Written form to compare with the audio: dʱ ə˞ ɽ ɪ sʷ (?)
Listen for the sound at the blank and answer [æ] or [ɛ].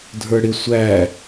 æ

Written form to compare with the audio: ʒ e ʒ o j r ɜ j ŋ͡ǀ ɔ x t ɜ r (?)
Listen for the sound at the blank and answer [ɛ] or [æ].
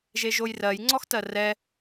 ɛ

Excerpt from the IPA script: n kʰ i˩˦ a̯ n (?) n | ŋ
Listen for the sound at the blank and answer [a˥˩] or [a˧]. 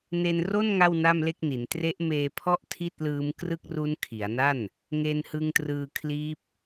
a˥˩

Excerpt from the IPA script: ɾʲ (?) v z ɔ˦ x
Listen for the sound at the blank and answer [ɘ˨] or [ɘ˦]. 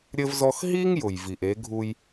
ɘ˦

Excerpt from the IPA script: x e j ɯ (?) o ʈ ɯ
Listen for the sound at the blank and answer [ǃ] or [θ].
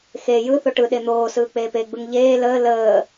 θ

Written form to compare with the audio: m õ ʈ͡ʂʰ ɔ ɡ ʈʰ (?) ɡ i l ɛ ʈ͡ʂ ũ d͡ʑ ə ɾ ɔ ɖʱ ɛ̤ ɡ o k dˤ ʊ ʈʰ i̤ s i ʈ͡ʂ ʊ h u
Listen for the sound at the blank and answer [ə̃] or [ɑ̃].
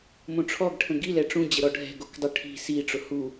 ə̃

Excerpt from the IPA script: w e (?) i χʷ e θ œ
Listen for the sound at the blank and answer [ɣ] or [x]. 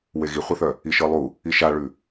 ɣ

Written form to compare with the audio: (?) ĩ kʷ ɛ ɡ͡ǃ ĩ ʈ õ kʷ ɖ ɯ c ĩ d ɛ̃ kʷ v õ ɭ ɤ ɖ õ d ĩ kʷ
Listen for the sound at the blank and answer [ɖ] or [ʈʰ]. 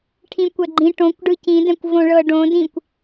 ʈʰ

